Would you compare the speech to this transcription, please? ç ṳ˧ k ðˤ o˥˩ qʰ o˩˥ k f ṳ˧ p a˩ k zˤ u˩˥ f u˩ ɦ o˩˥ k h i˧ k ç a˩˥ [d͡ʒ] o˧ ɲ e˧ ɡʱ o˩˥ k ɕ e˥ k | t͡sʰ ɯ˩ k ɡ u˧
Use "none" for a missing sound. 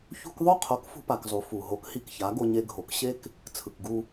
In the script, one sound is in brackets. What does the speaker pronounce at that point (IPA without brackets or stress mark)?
ɡ